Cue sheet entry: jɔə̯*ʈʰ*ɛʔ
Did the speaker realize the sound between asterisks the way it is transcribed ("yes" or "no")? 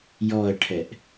yes